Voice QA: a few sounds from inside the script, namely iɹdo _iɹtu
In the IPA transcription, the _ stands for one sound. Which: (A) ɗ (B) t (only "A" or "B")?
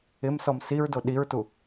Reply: A